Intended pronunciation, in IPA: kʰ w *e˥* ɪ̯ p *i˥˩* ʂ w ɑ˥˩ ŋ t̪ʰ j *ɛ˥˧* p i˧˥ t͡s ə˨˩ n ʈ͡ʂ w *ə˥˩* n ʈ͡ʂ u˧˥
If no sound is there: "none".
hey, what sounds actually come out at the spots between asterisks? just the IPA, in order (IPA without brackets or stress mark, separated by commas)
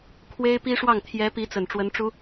e˥, i˥, ɛ˧˥, ə˧˥